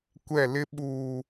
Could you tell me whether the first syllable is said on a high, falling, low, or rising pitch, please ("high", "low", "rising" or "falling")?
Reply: falling